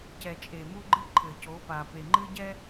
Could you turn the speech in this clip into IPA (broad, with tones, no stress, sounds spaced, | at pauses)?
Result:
c ɛ˨ t͡ʃʼ e˨ m u˦ ɡ͡ǃ ɨ˦ ǃʰ ɘ˨ c o˨˦ p a˨ p e˨ ŋ͡ǃ ɨ˦ ɟ ɛ˦